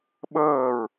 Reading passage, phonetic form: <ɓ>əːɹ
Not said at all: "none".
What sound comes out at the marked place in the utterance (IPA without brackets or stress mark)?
ɓ